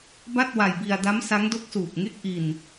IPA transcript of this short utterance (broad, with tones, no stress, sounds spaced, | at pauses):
b a˥˩ t̚ w a˧ j b i˧ a̯ d a˦˥ m s a˦˥ ŋ d o˦˥ k̚ s uː˨˩ k̚ ŋ e˥˩ k̚ ʔ i˧ n